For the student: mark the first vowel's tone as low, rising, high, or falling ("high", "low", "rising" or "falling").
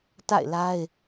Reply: falling